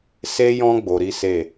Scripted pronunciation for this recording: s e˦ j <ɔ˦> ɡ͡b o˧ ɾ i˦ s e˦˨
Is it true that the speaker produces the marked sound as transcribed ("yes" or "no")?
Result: no